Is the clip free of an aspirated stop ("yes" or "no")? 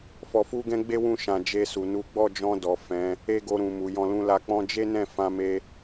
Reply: yes